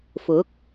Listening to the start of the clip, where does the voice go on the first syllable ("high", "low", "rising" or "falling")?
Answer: rising